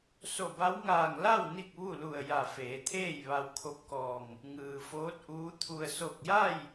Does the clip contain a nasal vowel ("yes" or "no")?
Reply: no